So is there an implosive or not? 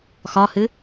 no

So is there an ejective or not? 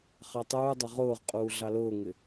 yes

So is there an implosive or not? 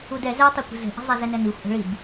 no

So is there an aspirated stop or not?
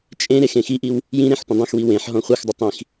no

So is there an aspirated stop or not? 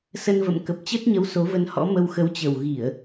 no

